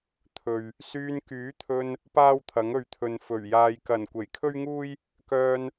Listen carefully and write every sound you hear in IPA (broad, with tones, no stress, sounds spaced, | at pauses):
t̪ʰ ɵ˨ ɥ | s yː˧ n k yː˨˥ t̪ʰ ɵ˧ n | p aː˥ w t̪ʰ ɐ˨˥ ŋ ɵ˨˧ ɥ t̪ʰ ɵ˨ n f ɵ˨˩ ɥ j aː˨ j k ɐ˨˩ n kʷ e˨˩ j kʰ ɵ˥ ɥ ŋ uː˥ j | k œː˧ n